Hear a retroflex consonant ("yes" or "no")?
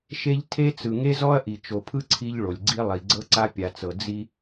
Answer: yes